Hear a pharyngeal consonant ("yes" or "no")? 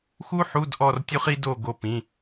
yes